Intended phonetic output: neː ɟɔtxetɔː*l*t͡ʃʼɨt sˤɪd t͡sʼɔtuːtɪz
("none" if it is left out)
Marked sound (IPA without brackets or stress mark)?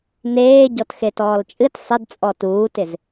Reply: l